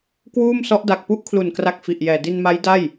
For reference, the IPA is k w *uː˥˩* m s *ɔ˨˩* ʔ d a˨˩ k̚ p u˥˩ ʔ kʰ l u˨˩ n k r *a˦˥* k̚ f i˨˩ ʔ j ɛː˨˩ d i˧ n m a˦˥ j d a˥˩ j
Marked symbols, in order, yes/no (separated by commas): yes, no, no